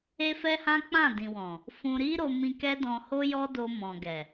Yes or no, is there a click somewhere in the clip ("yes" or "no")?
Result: no